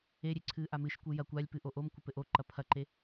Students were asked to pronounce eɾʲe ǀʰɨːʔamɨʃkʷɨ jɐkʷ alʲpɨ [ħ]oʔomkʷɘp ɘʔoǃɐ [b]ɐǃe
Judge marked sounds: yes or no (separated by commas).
no, no